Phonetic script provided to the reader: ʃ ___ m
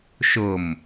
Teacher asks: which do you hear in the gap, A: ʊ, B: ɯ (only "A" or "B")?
A